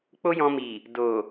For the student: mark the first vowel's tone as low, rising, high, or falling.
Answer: high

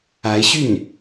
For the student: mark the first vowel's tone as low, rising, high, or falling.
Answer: rising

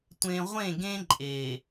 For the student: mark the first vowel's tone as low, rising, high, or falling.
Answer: low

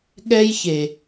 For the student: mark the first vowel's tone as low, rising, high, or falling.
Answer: high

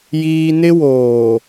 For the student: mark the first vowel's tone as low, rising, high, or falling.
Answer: high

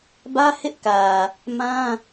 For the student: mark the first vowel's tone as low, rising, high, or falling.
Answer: high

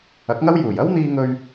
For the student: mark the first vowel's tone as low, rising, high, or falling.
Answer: rising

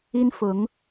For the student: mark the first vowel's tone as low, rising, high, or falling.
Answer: high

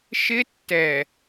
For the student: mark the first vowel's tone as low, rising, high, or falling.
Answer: high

